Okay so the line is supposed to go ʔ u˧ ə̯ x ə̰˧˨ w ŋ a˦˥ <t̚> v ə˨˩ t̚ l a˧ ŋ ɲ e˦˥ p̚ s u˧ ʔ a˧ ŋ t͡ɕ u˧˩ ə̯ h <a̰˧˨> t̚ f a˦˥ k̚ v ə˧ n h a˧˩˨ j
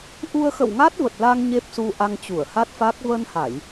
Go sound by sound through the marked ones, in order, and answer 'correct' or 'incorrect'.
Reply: correct, incorrect: a˦˥

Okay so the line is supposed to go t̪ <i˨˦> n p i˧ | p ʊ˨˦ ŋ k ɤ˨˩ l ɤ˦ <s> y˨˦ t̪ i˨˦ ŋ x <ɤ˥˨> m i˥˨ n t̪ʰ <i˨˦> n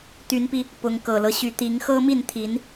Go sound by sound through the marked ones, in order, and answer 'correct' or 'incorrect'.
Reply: incorrect: y˨˦, incorrect: ɕ, incorrect: ɤ˦, correct

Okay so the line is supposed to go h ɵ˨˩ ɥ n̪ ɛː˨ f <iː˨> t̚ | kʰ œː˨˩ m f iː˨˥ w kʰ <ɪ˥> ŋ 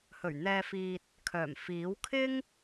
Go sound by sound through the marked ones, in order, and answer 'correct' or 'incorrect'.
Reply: correct, correct

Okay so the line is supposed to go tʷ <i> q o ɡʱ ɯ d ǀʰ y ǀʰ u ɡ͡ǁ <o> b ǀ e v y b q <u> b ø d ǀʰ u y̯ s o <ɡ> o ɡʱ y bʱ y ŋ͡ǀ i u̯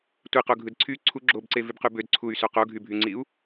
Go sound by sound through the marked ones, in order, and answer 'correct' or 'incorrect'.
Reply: correct, correct, incorrect: y, incorrect: q

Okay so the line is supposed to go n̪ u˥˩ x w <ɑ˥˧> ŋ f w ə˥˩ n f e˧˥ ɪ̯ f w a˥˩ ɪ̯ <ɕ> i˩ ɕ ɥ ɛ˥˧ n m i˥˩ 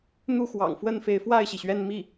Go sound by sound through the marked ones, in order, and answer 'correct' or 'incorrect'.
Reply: incorrect: ɑ̰˨˩, correct

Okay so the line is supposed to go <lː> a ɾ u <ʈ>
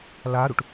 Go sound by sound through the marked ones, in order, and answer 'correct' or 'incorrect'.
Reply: incorrect: l, correct

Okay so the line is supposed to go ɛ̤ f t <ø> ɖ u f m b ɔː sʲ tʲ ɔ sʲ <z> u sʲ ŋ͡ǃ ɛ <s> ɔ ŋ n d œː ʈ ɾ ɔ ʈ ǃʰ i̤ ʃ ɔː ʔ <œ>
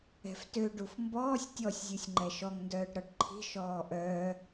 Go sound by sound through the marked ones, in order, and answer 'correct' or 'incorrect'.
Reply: correct, incorrect: zʲ, incorrect: ʃ, incorrect: œː

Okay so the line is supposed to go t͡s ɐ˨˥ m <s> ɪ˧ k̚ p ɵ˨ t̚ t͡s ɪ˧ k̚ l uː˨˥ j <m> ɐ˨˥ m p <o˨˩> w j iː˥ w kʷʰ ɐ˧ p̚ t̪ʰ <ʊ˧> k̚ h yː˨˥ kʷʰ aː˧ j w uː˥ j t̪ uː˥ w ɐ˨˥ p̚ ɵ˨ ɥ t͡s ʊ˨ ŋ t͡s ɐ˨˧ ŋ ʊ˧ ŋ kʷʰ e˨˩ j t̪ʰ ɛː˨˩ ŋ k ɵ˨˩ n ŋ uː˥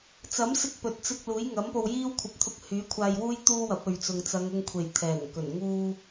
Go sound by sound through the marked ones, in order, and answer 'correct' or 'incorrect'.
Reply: correct, incorrect: ŋ, incorrect: o˧, correct

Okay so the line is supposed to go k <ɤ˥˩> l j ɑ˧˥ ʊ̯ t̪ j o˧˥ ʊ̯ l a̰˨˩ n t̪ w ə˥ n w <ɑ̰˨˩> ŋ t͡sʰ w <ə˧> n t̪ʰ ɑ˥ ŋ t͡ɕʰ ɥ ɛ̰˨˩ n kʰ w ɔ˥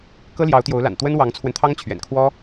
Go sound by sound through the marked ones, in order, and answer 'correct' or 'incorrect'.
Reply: incorrect: ɤ˥, incorrect: ɑ˧˥, correct

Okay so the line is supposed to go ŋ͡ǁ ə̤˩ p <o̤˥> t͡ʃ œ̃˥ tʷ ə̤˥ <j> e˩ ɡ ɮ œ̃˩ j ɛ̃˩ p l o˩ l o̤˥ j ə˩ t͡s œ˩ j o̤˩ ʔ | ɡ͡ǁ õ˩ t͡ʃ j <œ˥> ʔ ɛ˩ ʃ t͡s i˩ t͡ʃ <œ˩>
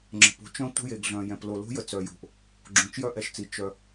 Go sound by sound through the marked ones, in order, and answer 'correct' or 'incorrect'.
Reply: correct, correct, correct, correct

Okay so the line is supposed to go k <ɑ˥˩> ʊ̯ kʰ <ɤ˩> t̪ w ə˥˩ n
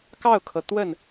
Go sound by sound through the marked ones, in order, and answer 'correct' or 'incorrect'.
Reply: correct, correct

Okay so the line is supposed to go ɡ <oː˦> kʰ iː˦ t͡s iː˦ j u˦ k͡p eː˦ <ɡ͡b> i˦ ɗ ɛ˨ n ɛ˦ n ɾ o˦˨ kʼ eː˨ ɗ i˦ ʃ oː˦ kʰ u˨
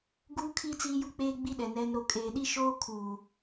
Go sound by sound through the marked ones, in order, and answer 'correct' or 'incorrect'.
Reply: incorrect: uː˦, correct

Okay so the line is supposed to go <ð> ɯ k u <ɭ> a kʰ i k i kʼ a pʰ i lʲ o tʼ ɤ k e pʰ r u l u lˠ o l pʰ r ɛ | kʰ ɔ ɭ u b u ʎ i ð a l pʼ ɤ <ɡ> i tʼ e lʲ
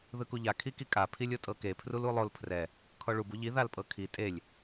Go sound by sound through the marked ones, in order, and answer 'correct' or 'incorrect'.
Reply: correct, incorrect: ʎ, incorrect: kʰ

